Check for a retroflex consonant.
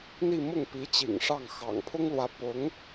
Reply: present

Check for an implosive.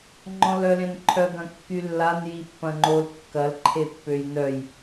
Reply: absent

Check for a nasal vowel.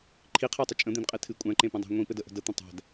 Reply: present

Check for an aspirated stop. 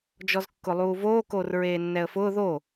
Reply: absent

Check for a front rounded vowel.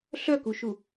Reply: present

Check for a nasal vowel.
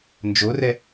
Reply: absent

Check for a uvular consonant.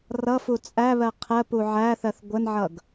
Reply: present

